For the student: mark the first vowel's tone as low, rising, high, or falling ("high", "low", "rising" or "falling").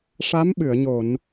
rising